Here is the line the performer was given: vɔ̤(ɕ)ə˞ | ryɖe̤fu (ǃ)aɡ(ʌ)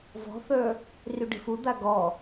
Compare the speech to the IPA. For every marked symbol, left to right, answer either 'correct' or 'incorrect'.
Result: incorrect: θ, incorrect: d̪, incorrect: ɔ

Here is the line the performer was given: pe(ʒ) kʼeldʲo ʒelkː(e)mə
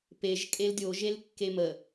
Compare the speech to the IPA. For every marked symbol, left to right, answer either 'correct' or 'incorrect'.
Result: correct, correct

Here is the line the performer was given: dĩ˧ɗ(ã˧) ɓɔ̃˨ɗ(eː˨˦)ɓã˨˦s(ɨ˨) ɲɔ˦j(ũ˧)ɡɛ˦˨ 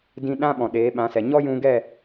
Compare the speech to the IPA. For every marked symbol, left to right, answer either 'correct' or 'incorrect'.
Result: incorrect: ã˦, correct, incorrect: ɛ˨, correct

